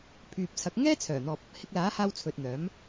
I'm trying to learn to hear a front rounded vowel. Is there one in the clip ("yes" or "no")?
yes